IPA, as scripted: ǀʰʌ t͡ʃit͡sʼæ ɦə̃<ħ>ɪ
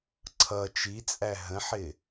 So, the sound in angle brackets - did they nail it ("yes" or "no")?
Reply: yes